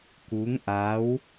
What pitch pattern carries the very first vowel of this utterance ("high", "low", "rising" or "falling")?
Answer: rising